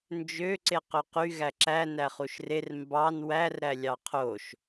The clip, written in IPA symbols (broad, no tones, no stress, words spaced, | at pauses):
nd͡ʒø ǀeqøqy ɣæǁæ næχuʃrer mbɑn wær ɾælʲɑqʰoʃ